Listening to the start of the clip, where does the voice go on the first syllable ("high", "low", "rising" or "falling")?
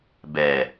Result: low